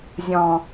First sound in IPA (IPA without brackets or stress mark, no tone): zʲ